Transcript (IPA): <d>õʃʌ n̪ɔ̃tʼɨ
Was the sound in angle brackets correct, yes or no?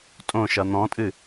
no